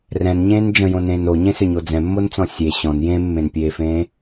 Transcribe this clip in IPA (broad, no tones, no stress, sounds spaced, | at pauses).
r ɛ̃ n ɲ ẽː n d͡ʒ ə̃ j õ n ẽː n o ɲ ẽ s ʏ ɲ o d͡z ɛ̃ mː o n t͡s ɔ̃ sʲ e ɕ ɔ̃ n j ẽ mː ẽ n pʲ eː f ẽː